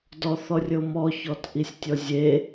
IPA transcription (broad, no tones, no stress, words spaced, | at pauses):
dɔθɔrʲɤmɔ çɔtʔisʲtʲɔzʲe